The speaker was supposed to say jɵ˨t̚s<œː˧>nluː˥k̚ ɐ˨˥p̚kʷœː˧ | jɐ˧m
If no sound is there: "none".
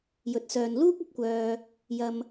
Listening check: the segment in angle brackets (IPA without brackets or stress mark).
œː˨